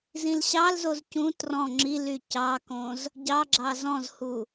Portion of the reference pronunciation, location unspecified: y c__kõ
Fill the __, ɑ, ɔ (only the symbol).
ɑ